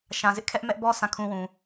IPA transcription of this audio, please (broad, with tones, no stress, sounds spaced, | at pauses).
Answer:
ʃ ã˨ z ɪ˦ ʔ kʰ ɛ˦ ʔ m ɛ˦ ʔ b ɔ˦ sʰ ã˦˨ kʰ ũ˦ w ũ˨